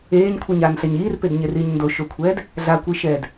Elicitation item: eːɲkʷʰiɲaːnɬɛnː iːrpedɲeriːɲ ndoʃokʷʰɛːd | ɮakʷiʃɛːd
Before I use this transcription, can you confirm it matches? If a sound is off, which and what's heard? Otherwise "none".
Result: nː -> ɲ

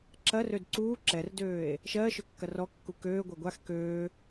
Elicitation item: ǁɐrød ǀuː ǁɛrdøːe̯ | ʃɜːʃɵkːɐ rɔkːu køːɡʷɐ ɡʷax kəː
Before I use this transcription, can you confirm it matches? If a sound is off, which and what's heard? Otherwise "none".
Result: əː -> øː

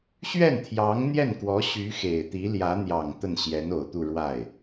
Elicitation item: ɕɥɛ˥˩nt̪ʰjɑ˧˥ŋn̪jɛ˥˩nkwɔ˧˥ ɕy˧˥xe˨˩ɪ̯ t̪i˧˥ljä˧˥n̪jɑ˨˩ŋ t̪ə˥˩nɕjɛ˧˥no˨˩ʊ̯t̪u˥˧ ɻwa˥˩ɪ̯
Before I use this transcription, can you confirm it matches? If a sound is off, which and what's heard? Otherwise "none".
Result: none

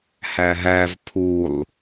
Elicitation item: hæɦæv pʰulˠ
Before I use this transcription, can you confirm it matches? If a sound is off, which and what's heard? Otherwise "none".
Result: none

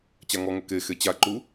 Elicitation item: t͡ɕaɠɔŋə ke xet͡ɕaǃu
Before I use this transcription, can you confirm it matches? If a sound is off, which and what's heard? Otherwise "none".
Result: ɠ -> ŋ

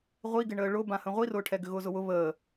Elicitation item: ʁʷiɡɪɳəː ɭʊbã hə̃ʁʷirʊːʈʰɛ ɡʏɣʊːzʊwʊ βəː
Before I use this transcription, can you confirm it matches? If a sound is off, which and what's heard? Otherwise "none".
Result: none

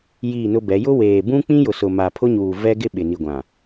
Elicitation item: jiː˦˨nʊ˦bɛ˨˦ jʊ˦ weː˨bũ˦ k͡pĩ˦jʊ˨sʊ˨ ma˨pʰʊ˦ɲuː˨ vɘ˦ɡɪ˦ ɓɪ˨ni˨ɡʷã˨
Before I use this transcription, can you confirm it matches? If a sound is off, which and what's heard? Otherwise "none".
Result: ɘ˦ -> ɛ˦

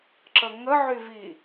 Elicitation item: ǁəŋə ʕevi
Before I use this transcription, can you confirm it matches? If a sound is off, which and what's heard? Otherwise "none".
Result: e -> y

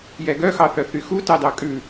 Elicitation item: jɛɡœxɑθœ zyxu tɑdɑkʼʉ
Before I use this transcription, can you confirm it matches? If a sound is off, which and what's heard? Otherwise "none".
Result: z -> θ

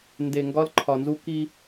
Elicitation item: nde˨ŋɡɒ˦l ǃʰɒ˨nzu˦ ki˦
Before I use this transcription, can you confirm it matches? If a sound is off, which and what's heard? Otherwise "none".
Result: none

